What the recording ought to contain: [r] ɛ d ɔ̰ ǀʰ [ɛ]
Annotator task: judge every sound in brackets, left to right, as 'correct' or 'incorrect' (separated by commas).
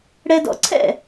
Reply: incorrect, incorrect